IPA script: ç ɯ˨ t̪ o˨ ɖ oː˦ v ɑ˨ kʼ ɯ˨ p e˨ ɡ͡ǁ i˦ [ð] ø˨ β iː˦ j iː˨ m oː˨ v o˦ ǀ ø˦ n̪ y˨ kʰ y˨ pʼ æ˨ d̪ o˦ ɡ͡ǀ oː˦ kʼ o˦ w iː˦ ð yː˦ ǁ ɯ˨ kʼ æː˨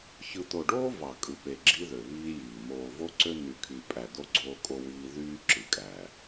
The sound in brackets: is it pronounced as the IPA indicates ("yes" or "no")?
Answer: yes